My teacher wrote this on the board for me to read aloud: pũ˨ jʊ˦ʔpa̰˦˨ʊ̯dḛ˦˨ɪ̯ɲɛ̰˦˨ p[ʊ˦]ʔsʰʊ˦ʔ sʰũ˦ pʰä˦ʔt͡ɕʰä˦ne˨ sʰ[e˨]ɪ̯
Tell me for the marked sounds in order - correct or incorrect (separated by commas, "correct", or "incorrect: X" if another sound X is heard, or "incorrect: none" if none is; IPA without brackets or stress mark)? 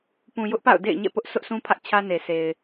correct, correct